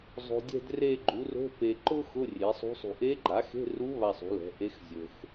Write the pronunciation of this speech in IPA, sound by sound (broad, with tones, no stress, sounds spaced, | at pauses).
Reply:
zˤ o̤˨ dʲ ɛ̤˦˨ d r e˦˨ ɡ͡ǃ u˩˥ r o̤˧˥˧ p e˨ ǃ ʊ˥ x ʊ˧˥˧ rʲ e˩˥ sˤ ṳ˧˥ sˤ ṳ˨ ʔ e˧˥ ɡ͡ǃ a˩˥ x e̤˧˥˧ r u˧˥ β a˦˨ sˤ ṳ˩˥ l ɛ̤˩˥ ʔ e˧˥ x zʲ ɵ˨ x